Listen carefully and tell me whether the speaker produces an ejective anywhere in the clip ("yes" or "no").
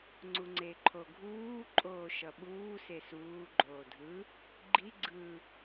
yes